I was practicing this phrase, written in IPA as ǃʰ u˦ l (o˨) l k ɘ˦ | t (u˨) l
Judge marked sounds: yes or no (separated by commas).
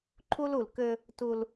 no, no